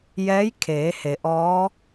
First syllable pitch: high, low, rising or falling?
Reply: rising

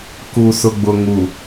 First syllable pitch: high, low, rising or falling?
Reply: low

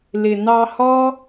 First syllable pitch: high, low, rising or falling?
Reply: low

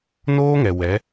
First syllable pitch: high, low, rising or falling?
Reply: high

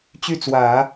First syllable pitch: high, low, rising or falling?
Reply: falling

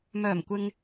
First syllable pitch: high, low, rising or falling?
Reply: low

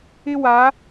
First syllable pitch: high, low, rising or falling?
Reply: high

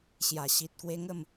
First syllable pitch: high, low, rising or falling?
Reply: low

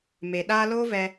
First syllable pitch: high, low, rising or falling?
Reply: low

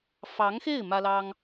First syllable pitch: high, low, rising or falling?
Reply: rising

